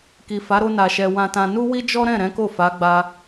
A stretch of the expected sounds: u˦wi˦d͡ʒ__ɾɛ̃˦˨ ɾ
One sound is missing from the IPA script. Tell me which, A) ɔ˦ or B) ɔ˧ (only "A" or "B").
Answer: A